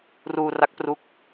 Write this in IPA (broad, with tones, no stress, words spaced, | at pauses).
ruː˧ ra˦˥k̚pru˦˥k̚